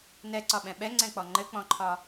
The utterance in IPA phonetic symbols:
nɛǀɒɓɛ̃ ɓɛŋ͡ǀɛ̃k͡pɔ ŋ͡ǃɘk͡pɔ̃ǃʰɒ

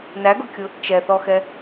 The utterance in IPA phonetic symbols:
næɡʊkʲʊ | t͡ʃɛθɔxɛ

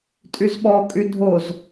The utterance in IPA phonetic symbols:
tʼyzɓɔ kʼydʱoz

